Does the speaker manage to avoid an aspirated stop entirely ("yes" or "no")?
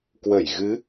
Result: yes